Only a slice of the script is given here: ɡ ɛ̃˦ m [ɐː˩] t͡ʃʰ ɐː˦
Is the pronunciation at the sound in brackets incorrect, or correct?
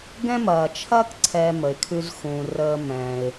correct